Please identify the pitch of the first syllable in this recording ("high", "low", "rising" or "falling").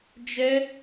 high